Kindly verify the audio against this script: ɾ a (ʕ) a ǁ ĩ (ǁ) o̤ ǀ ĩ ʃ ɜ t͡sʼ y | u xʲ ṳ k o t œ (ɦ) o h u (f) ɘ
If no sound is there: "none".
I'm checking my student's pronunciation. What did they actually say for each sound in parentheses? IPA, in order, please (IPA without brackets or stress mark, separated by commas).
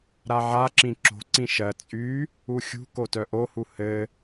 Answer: ʕ, ǁ, ʔ, h